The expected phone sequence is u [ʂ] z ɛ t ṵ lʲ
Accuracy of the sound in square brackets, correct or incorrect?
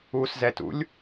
incorrect